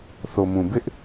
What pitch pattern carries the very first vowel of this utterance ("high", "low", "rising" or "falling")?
low